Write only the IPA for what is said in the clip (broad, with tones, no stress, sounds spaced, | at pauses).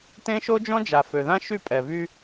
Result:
t ẽ˦ ʃ o˦ d͡ʒ ɔ̃˦ d͡ʒ a˨ f ø˨ ð ã˦ ʃ y˦˨ pʼ ɛ˨ v y˦